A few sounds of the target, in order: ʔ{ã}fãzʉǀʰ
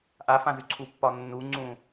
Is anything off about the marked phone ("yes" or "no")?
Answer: yes